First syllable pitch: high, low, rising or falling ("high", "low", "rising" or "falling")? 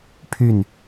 falling